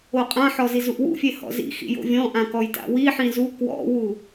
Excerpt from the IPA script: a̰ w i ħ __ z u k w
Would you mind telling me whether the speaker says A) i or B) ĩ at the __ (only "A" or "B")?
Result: B